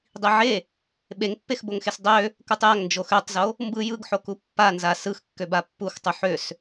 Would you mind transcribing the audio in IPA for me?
dˤ i ʕ e | ɓ e ŋ pː e x b o ŋ x e s dˤ ø | k u tˤ j a ŋ n d͡ʒ o x ø tˤ z o | m b ɯ j ɯ ɡ ħ o k u pː a n z a s ɯ x kː ø b a pː u x tˤ u ħ ø s

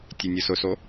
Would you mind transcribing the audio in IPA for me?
tʲ e nʲ ʊ s ʊ s o

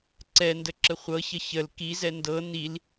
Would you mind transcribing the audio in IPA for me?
ǀ ɛ n d ə ǁ ə χʷ ɤ ç ə ç ə l k i z ɛ n d ɤ n i l

